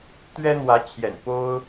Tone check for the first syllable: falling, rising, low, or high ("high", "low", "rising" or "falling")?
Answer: high